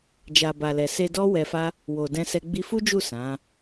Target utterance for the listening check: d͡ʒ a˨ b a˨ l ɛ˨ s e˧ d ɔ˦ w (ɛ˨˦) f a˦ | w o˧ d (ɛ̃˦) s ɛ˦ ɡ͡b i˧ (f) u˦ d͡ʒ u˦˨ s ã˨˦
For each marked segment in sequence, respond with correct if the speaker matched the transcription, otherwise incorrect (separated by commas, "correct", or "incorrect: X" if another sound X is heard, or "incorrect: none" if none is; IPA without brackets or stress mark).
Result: incorrect: ɛ˧, correct, correct